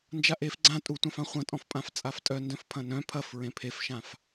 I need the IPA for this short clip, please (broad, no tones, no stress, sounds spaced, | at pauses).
n d͡ʒ a ʔ e f ɡ͡ǀ ã tʼ u tʷ ã f ã χʷ ɐ̃ tʼ ɔ̃ f pʼ ã f t͡sʼ a f tʼ œ n d œ̃ f pʰ ɐ̃ n œ̃ pʰ ɐ f ɹ ẽ pʰ e f ʃ ã f